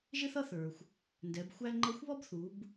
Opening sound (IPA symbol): ʒ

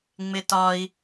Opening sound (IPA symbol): ŋ͡m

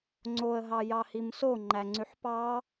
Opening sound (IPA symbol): ŋ͡ǀ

